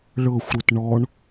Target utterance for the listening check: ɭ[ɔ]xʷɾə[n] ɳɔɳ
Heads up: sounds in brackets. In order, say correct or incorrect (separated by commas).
incorrect, incorrect